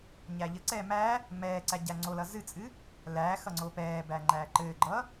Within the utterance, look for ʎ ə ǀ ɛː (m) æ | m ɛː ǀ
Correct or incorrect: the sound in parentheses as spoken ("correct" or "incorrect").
correct